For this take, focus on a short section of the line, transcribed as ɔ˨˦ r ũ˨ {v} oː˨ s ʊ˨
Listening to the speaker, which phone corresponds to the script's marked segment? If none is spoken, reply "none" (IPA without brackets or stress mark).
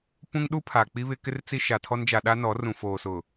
f